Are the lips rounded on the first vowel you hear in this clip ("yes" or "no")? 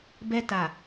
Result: no